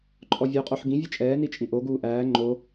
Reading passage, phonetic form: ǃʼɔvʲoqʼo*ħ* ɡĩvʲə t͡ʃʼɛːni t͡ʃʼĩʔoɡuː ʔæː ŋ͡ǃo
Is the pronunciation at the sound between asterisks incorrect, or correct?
correct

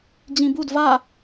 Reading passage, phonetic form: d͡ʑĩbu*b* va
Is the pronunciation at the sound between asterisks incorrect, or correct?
incorrect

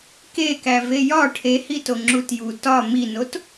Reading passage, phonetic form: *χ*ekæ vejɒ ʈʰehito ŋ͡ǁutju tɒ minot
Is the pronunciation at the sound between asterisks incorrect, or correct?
incorrect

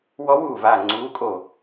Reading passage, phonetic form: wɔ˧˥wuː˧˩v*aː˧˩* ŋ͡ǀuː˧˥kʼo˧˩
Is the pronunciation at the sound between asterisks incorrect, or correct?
correct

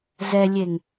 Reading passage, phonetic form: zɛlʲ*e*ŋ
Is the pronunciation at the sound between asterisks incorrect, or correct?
correct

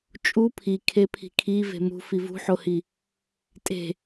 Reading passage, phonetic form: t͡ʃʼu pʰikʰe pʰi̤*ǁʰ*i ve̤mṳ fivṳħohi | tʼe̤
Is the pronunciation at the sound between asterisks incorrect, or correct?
incorrect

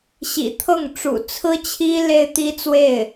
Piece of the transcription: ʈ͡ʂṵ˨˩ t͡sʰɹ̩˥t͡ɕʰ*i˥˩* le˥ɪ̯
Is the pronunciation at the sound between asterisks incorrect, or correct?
incorrect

